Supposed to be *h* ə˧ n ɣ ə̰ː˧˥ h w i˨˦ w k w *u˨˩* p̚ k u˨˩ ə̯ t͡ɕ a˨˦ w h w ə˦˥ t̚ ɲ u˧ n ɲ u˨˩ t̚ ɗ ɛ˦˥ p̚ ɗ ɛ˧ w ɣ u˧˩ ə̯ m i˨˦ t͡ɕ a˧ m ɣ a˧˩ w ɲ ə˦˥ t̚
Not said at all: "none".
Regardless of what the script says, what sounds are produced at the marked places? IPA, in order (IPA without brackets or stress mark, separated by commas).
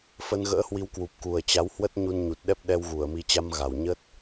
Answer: f, u˨˩